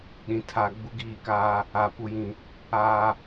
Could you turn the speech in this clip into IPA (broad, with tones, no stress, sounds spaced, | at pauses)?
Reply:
ɗ ĩ˨ tʰ a˨ ɡ͡b u˦ ɡ iː˦˨ k aː˦ | a˨ p u˨ j ĩ˨ | aː˨